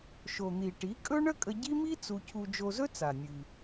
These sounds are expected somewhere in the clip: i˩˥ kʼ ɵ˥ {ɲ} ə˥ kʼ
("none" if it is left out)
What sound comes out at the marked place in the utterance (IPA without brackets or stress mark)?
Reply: ɳ